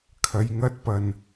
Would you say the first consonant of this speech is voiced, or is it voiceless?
voiceless